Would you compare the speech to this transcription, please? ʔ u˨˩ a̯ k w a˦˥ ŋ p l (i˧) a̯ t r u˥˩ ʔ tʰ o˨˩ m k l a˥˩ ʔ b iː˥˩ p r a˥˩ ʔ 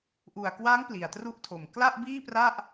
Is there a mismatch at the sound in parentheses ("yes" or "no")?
yes